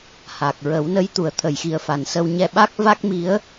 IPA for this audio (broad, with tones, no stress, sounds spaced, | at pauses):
h a˨˩ k̚ ɹ ə˨˩˦ w n ə˧˥ j t̪ u˨˩˨ ə̯ t̪ʰ ə˨˩˨ j x i˨˩ ə̯ f a˨˩ n s ə˧ w ɲ ɛ˧ ɓ a˦˥ k̚ v a˦˥ k̚ m i˧˥ ə̯